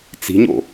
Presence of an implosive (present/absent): absent